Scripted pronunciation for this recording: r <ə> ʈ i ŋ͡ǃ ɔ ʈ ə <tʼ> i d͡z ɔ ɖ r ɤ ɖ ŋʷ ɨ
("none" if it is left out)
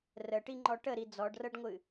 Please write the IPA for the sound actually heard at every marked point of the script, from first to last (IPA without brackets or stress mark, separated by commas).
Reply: ə, ɾ